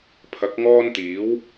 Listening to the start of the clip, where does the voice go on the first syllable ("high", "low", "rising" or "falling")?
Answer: rising